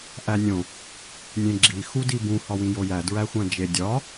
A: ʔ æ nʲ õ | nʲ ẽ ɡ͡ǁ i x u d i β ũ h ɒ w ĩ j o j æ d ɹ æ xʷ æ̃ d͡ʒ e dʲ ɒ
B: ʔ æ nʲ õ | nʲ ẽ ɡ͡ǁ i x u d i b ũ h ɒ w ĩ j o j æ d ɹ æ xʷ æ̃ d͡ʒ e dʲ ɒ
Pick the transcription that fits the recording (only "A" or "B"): B